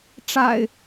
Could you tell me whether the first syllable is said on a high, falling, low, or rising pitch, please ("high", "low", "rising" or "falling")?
low